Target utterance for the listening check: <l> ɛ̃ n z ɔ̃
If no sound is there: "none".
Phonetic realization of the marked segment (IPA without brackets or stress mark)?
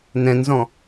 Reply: n